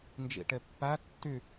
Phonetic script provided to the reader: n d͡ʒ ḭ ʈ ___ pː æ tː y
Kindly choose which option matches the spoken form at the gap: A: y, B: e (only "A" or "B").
B